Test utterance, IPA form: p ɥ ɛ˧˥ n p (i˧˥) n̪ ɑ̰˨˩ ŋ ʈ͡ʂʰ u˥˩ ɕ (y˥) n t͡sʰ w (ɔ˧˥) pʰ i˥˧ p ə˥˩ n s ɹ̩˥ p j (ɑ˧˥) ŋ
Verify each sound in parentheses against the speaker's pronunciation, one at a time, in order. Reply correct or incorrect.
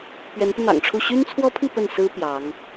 incorrect: i˧, correct, incorrect: ɔ˥, correct

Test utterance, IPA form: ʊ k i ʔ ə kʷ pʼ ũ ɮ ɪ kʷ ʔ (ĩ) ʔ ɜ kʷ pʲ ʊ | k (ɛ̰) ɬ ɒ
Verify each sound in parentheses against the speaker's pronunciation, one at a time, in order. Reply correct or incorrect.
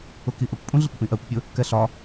correct, incorrect: ɛ

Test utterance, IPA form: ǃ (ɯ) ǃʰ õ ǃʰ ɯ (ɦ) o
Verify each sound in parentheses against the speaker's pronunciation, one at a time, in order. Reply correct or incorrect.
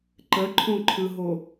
incorrect: ə, correct

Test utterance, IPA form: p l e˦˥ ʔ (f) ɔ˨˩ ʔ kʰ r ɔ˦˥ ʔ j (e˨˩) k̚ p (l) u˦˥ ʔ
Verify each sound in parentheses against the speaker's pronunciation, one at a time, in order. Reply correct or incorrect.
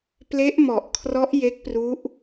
incorrect: m, incorrect: e˦˥, incorrect: r

